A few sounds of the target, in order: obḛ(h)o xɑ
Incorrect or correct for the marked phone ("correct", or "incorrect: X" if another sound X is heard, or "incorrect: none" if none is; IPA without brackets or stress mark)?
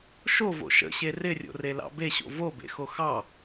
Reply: incorrect: x